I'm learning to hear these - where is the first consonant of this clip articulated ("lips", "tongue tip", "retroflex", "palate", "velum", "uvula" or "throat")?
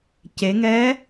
palate